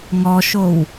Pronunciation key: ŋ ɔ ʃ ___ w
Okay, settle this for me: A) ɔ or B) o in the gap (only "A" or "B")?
B